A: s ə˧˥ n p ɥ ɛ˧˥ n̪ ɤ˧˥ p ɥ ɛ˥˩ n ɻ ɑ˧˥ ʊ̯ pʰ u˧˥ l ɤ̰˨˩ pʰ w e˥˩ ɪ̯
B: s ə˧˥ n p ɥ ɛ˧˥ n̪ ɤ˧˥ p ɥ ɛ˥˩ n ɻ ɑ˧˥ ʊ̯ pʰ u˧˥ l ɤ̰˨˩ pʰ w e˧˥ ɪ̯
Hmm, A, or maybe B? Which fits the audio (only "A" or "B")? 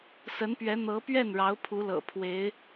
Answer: B